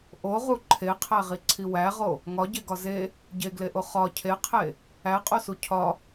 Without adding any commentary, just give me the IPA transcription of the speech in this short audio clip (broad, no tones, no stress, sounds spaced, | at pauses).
ʔ o ʁ u ǃʰ e qʰ æ ʁ i ǀʰ i w æ ʁ o | ŋ ɒ ɟ e ɡ ɒ z e | ɟ e ɡ l e ʔ o χ ɒ cʰ e qʰ e | æ qʼ o s u cʰ ɒ